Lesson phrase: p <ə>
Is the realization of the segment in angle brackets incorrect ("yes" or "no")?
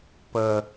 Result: no